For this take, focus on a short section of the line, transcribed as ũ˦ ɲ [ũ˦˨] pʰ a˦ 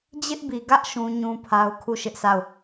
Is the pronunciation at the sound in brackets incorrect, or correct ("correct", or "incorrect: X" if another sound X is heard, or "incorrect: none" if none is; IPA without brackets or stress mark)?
incorrect: ũ˦